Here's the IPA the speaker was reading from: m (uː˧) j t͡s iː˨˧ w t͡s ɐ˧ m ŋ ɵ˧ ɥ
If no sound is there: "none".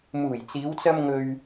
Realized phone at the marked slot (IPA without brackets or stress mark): uː˨˩